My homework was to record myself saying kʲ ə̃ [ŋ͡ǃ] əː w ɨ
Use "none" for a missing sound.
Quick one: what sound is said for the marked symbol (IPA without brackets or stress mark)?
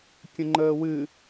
ŋ͡ǃ